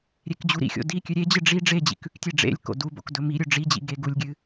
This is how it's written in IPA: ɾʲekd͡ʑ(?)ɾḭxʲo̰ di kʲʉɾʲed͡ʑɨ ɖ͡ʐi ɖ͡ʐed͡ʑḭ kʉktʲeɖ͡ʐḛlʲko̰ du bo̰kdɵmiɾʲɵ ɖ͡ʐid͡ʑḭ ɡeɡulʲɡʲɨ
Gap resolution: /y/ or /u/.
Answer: u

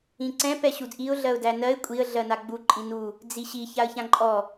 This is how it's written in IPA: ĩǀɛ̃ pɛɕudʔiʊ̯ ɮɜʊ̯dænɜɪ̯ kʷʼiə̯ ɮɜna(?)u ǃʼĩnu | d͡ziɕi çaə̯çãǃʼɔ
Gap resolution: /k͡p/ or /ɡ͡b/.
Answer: ɡ͡b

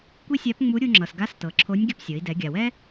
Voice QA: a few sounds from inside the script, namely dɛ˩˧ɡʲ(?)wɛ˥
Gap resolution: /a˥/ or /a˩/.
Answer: a˩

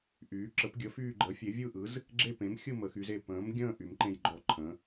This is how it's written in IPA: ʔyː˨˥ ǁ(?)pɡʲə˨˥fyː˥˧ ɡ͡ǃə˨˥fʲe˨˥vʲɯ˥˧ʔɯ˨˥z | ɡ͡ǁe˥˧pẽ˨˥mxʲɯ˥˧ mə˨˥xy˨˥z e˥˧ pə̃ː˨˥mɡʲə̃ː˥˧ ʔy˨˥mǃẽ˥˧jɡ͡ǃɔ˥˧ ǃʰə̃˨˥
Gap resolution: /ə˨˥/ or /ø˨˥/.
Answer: ə˨˥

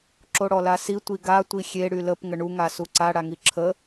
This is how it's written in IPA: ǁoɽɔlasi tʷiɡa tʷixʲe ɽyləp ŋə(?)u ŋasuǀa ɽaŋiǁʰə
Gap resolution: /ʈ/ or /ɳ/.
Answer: ɳ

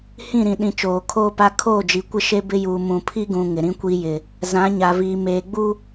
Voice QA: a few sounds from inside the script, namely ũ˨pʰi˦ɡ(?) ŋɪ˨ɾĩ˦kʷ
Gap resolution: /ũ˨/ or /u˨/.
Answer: ũ˨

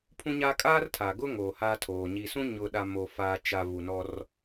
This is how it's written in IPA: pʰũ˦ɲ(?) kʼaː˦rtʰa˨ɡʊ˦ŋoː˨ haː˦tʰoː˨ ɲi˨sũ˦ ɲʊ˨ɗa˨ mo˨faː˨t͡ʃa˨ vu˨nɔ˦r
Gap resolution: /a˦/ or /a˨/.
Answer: a˦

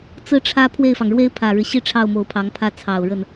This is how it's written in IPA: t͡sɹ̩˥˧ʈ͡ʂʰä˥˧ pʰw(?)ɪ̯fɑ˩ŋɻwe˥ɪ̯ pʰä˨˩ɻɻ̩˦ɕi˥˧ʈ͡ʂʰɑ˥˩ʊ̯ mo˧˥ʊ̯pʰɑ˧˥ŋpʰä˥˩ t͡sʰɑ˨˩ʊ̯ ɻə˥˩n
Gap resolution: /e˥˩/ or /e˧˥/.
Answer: e˥˩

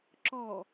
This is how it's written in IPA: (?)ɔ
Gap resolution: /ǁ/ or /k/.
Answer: ǁ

